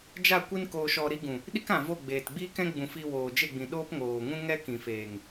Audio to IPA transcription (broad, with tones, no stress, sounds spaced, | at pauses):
d͡ʒ a˦˨ kʷ i˦ n k oː˧ ʃ ɔ˧ ɾ i˦ ɡ ũ˨ | ɗ i˦ k ã˨ v o˦˨ ɡ͡b eː˨ t ɡ͡b iː˦ k ɛ̃˦ ɡ͡b ũ˨ f i˧ w oː˨ d͡ʒ e˦˨ ɡ͡b ĩ˨ ɗ oː˦ p ŋ oː˨ ŋ ũ˦ ŋ ɛ˦ k ĩ˨ f eː˨ ŋ